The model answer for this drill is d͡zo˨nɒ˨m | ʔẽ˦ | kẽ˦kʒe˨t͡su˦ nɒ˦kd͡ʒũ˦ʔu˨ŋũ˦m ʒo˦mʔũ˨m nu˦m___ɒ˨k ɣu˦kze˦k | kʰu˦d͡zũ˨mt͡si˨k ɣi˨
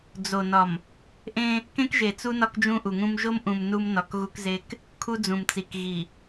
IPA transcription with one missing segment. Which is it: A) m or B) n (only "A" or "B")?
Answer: B